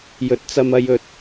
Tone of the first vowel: rising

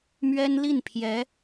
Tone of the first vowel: high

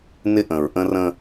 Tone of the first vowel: high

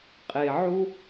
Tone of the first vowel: low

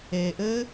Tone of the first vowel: low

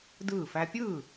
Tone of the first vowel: falling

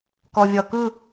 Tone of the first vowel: low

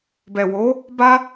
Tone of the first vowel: low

